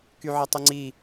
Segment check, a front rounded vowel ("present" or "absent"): present